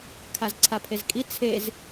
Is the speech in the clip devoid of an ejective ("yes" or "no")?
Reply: no